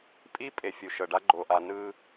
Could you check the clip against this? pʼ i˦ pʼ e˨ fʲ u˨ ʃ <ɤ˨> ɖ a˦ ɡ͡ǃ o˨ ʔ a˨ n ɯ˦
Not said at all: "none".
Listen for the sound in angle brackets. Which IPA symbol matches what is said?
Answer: ɤ˨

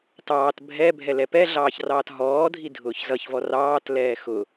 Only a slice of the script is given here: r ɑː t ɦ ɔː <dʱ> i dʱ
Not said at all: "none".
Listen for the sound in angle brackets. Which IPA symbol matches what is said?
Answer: dʱ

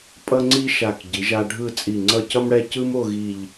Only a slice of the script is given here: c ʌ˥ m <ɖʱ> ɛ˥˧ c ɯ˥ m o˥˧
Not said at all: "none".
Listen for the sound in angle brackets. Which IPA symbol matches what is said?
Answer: ɽ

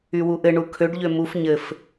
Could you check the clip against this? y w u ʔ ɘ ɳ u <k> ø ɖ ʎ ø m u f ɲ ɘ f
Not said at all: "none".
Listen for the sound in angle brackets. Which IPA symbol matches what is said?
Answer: kʰ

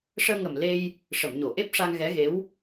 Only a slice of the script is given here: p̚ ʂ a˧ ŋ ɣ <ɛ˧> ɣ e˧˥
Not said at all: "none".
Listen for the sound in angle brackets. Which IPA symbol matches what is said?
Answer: ɛ˧˥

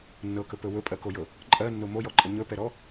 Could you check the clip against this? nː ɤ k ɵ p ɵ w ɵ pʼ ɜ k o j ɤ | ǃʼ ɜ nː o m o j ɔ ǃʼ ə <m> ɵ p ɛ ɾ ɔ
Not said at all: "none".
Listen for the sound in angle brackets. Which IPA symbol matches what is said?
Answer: ɲ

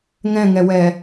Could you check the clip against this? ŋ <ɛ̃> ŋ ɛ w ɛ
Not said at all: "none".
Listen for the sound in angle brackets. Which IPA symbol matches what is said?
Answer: ɛ̃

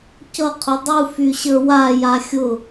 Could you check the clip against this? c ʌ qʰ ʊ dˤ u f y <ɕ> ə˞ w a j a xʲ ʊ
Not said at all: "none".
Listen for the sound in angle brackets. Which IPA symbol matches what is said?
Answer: ɕ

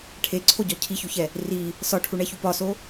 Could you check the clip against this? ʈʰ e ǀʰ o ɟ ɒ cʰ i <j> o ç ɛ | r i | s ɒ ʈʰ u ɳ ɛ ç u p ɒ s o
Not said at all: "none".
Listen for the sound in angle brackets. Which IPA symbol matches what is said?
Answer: ç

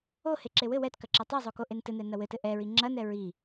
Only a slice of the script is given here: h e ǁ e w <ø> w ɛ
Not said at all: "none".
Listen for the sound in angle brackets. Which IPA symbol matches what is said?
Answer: ɘ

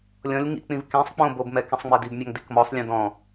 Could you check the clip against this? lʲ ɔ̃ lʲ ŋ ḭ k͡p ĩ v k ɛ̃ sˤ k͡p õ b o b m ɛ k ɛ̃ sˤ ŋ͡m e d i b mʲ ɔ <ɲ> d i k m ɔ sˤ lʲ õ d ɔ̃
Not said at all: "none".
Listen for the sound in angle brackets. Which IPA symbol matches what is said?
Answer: ŋ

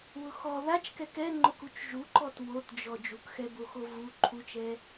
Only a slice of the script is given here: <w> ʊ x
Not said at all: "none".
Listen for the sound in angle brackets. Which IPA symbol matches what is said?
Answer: w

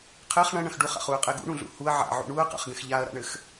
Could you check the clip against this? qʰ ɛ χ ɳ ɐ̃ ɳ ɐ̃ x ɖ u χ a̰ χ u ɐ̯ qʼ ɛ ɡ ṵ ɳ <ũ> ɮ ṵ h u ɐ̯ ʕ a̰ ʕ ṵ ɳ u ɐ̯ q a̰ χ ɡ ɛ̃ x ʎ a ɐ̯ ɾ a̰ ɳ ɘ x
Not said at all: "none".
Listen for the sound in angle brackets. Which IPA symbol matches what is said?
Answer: ũ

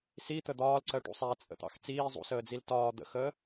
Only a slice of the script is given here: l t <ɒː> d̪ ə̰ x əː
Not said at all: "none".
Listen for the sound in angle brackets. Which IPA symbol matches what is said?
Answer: ɒː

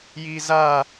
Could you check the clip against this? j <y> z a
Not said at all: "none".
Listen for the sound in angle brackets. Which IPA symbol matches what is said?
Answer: i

